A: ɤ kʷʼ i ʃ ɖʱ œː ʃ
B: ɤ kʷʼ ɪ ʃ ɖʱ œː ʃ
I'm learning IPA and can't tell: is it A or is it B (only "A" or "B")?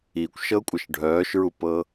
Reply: B